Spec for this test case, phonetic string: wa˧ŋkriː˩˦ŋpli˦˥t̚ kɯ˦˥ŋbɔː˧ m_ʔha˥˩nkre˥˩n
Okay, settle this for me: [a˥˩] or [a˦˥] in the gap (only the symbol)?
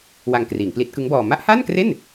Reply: a˦˥